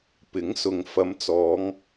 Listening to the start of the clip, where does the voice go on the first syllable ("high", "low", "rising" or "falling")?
rising